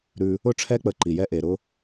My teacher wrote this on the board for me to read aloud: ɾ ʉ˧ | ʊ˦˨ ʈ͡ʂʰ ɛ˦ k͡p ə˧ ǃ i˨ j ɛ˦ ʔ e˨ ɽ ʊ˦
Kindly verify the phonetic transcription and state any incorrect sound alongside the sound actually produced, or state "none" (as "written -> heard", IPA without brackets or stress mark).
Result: ɽ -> ɾ